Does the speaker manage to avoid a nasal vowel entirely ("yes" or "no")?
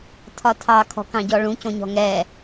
no